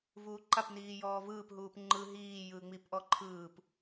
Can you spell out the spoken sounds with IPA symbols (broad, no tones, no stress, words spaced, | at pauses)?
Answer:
vuːǃap niːjɔːvɯːp ɦuːpŋ͡ǃɯ ɦiː jɯːŋ͡mip ʔɔǃʰɯːp